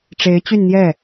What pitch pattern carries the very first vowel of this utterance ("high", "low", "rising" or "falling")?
rising